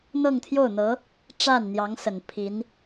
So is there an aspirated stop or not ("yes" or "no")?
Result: yes